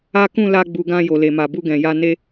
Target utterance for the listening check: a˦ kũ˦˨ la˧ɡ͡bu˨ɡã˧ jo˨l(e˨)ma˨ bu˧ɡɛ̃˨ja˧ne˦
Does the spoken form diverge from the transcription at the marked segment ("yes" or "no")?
no